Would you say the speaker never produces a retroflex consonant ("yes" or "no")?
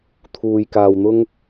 yes